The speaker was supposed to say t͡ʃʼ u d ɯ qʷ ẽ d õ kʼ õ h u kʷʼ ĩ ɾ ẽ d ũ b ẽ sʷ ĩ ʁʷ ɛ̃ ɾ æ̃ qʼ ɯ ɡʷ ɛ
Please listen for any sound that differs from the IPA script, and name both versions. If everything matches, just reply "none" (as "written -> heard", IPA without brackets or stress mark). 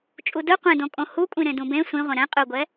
æ̃ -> ɛ̃